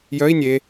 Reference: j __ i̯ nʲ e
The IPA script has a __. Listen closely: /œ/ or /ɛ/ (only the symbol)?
œ